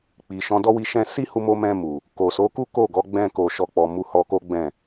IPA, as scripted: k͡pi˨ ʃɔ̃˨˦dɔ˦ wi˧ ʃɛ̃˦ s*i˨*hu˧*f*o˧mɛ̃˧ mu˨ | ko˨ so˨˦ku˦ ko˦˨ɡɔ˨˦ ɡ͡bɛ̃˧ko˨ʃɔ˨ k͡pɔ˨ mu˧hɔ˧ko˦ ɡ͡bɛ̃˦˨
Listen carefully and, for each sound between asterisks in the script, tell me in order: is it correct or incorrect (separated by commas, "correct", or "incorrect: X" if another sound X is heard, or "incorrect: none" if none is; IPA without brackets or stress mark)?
incorrect: i˦, incorrect: m